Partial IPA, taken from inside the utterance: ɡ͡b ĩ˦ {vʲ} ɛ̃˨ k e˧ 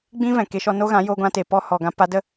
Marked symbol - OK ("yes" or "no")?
no